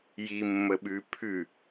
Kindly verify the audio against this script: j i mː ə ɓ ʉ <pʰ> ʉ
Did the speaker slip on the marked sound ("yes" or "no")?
no